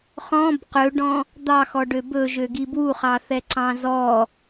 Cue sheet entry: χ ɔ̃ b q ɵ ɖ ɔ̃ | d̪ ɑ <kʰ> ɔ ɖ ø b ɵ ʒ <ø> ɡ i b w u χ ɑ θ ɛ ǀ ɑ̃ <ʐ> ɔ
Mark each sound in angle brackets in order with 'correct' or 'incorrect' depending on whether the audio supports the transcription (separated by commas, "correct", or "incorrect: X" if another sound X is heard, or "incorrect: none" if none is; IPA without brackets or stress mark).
incorrect: x, correct, incorrect: z